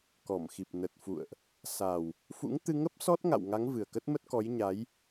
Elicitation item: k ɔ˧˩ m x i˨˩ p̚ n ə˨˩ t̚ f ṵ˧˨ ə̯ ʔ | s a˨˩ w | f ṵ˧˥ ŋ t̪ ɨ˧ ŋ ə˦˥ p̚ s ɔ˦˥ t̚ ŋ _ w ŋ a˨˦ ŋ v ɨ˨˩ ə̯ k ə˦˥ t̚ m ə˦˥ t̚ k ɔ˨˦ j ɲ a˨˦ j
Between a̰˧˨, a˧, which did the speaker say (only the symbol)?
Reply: a̰˧˨